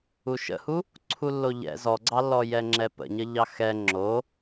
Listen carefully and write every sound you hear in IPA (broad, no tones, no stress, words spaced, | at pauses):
uʃə̰hu | ǀʰulːoʎɛ̰ zɔɡ͡ǀɑlːɔ jɛŋ͡ǁɛpə̰ɲə ʎɑxɛ ŋ͡ǁo